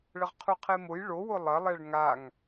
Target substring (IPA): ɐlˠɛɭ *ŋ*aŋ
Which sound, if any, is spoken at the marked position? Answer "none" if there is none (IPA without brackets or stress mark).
ŋ